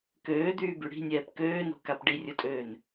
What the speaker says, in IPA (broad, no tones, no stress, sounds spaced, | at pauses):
k øː d̪ yː b y ɽ i̤ nʲ ɛː p k øː n o̤ k a p ɖ i rʲ u tʼ øː n